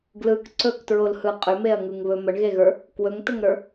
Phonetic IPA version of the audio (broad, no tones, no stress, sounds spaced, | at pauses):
ɡ l ɯ k ǀ ɵ k t ɹ o l h ɯ qʼ ʏ m e ɐ̯ ŋ ɯ ŋ β ɵ m ə ɳ ɣ e ɣ ə˞ | k w ɵ ŋ t ə ŋ ɾ ə˞